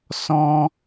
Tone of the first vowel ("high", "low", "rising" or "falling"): high